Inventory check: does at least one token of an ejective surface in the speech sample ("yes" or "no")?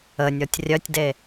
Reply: no